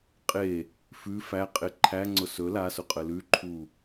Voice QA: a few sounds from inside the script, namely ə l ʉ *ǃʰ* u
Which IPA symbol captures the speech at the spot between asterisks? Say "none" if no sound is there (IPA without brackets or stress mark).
ǃʰ